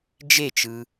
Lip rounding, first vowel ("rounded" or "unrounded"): unrounded